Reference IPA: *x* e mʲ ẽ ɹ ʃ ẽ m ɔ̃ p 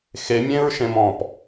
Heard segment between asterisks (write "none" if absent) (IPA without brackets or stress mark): x